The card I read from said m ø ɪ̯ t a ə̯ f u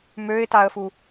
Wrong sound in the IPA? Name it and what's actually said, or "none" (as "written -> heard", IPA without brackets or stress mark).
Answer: none